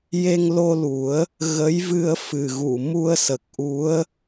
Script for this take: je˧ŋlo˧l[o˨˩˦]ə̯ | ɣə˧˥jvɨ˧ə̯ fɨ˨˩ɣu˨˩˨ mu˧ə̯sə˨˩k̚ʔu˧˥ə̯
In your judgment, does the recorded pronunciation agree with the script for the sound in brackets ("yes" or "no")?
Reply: no